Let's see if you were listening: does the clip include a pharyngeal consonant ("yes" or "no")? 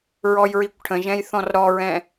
no